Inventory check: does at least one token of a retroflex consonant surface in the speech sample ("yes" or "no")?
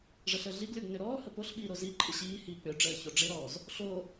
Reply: yes